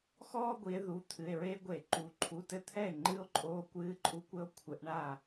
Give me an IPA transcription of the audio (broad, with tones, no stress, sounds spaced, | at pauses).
x ɔː˥ ɡʷ i˩˧ e̯ ð u˩˧˩ t̪ʰ ɨ˩˧˩ e̯ ɹ e˥ ɡʷ e˧˩˧ ǃ u˩˧ ǃʰ u˩˧˩ t ɘ˥˩ t̪ʰ ɛ˥˩ e̯ ŋ͡ǃ ɨ˥ o̯ ǃʼ oː˧˥ kʷ ɨː˧˥ ǃʼ u˧˥ kʷ ɘ˧˥ o̯ kʷʰ ɘ˩˧ ʔ ɳ a˥˩